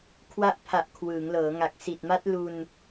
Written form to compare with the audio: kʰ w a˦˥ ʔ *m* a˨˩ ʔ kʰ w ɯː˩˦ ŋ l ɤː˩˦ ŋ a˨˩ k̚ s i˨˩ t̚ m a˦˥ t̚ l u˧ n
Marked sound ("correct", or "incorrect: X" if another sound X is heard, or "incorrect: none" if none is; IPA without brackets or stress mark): incorrect: pʰ